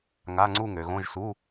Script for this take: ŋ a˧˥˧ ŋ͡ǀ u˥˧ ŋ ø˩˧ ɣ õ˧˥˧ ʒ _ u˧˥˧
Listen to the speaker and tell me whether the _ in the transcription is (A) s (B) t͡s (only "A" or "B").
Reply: A